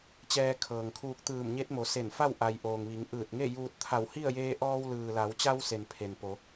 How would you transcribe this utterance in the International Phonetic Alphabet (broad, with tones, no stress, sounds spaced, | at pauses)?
t͡ɕ ɛː˧ kʰ ɤː˩ ŋ kʰ uː˧ k̚ t̪ ɯː˧˩ m ɲ e˧˥ t̚ m o˩˧ s e˧˩ n f a˥˨ w ʔ a˩ j ʔ oː˩ ŋ ʋ i˩˧ ŋ ʔ ɯː˧˩ t̚ ŋ e˥˨ j uː˧ t̚ t̪ʰ a˧˩ w h i˥˨ ə̯ j eː˧ ʔ ɔː˧ w l ɯː˩ l a˩˧ w t͡ɕ a˧ w s e˩ n pʰ e˩ n p o˩˧